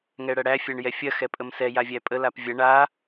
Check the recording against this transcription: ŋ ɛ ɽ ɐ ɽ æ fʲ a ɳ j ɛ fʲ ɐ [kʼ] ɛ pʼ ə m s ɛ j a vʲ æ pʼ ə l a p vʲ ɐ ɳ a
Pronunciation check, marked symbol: incorrect: x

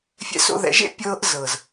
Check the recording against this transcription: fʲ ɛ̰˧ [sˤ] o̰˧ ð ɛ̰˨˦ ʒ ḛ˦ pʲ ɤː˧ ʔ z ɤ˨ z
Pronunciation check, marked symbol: incorrect: s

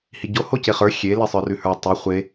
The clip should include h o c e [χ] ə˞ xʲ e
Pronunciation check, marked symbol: correct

